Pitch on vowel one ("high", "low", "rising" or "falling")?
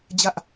high